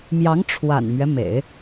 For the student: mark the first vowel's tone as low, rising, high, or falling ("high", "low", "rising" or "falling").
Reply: rising